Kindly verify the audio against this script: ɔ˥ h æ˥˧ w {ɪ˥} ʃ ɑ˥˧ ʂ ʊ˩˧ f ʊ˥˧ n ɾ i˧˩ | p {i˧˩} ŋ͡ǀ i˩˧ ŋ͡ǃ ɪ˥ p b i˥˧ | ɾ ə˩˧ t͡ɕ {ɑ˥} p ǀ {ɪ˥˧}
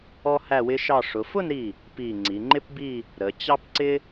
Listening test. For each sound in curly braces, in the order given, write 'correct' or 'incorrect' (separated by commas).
correct, correct, correct, incorrect